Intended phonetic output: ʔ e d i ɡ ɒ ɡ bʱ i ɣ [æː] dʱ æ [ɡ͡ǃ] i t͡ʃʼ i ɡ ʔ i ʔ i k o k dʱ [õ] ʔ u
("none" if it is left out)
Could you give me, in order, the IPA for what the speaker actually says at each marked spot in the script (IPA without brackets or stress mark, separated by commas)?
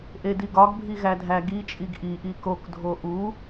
æ, ɡ, o